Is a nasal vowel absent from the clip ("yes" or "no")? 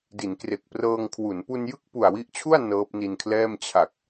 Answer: yes